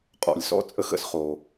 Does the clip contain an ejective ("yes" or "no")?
yes